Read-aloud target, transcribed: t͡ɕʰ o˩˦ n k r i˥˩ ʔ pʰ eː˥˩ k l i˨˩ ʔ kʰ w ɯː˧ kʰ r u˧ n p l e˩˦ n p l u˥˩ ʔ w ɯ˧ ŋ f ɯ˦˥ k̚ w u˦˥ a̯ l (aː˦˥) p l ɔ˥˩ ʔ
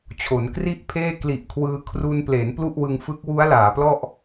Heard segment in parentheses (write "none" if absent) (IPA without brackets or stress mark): aː˩˦